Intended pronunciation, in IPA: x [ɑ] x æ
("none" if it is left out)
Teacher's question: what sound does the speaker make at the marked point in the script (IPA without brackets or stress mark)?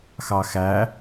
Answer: ɑ